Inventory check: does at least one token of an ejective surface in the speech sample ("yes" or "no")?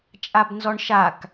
yes